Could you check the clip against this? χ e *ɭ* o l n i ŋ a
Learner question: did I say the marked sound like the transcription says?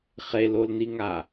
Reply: no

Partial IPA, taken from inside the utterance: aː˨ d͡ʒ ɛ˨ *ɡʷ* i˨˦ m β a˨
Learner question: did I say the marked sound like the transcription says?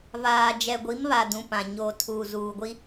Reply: yes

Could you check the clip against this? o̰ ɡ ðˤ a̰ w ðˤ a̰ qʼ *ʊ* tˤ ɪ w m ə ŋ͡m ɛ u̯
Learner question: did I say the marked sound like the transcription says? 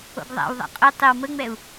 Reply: yes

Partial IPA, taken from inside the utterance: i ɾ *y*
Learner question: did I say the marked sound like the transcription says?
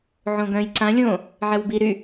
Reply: yes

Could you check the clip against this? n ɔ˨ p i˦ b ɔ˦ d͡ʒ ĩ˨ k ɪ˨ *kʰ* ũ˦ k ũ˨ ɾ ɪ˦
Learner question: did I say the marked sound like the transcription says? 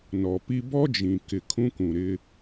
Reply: yes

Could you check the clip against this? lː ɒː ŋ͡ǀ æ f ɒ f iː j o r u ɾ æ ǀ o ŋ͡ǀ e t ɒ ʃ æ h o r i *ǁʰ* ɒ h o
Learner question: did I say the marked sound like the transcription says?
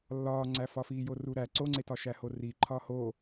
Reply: no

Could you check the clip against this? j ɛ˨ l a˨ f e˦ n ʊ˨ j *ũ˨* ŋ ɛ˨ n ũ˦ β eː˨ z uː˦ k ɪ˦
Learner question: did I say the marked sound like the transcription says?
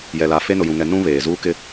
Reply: yes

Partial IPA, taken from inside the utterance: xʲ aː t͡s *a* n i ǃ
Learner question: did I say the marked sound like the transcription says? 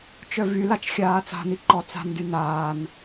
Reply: no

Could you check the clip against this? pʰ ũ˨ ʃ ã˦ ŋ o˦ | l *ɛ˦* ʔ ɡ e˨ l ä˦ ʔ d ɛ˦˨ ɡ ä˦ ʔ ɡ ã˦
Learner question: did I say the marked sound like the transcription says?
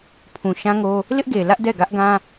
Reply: no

